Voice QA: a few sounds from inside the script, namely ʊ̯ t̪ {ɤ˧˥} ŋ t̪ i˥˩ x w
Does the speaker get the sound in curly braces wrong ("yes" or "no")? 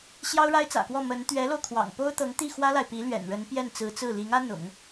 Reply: no